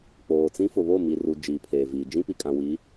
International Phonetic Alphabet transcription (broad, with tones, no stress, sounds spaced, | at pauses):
k͡p oː˨ t͡s ĩ˦ f ʊ˨ β o˦˨ m i˨ r u˨ d͡ʒ iː˨ pʰ eː˨ v iː˨ d͡ʒ ĩ˦ p i˨ kʼ ã˨ w i˨˦